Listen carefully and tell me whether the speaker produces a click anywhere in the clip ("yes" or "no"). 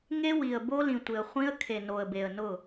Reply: no